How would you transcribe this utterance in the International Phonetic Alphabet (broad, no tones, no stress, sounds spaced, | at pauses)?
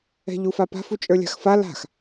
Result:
ɛ̤ ʎ u f a p a̤ f u t͡ʃʼ ə˞ lʲ a̤ x f a l a̤ x